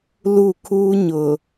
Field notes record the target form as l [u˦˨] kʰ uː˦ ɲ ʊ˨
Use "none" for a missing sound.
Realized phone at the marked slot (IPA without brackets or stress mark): u˦˨